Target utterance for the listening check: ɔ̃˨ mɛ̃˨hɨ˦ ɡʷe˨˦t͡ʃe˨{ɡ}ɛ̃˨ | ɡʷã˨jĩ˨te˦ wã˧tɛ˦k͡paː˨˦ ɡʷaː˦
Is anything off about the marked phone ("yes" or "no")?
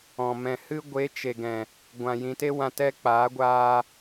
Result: no